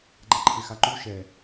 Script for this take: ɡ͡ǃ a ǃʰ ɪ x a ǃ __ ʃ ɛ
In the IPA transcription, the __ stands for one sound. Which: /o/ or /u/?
u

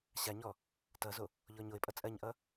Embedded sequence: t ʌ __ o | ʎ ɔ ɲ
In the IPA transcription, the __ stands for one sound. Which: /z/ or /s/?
z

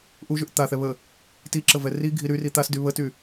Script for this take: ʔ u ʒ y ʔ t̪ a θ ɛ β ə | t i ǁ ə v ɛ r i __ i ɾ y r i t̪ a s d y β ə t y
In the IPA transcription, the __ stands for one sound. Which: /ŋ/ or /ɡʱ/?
ɡʱ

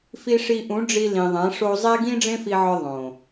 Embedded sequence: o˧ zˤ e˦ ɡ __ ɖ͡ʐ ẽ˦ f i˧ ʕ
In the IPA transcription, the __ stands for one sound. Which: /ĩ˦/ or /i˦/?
ĩ˦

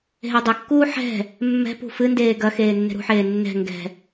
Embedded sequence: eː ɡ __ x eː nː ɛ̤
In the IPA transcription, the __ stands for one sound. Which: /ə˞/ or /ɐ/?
ɐ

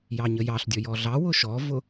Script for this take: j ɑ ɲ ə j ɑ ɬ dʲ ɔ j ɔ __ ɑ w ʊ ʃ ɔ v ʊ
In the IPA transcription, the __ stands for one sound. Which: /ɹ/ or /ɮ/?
ɮ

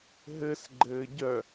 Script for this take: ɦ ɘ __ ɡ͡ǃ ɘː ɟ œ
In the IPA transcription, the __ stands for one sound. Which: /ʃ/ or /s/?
s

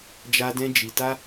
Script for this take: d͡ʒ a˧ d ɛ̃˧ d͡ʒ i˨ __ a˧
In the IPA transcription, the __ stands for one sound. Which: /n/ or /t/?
t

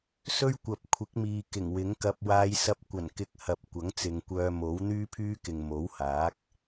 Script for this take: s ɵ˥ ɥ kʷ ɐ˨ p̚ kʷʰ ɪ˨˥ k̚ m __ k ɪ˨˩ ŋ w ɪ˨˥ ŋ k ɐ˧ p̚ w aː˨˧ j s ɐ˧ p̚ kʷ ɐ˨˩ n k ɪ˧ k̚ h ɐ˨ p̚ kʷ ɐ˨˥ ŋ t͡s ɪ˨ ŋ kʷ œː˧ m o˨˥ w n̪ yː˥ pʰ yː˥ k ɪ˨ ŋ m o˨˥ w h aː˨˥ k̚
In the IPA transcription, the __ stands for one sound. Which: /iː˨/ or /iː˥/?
iː˨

